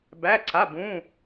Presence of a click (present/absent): present